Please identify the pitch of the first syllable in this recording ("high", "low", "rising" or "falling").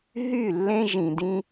falling